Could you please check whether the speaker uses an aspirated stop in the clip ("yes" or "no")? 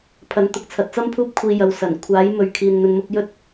yes